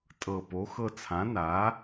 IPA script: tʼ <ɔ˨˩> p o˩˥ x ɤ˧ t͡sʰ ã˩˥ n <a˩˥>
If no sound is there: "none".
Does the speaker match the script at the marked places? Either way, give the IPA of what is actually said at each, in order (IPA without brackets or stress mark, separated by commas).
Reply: ɤ˨˩, a˩˥